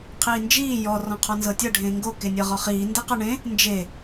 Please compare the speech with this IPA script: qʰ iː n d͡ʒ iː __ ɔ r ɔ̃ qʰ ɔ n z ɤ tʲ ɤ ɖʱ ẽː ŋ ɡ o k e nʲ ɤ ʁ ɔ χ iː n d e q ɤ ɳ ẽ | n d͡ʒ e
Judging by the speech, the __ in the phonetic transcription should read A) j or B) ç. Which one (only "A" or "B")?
A